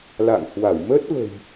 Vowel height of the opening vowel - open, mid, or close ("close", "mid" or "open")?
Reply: open